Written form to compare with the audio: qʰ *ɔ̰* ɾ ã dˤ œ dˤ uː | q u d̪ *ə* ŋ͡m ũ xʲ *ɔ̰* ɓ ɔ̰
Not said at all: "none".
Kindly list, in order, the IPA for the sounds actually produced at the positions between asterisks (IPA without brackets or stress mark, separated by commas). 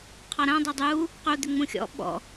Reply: ɔ, ʏ, ɔ̰